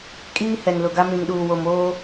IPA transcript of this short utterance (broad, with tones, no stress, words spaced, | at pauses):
kʼiː˦ hɛ˨nlʊ˨ɡa˦ mĩ˨ŋɗuː˨ wo˨moː˦